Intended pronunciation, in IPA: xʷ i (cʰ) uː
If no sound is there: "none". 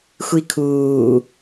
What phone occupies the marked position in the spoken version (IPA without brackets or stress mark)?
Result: kʰ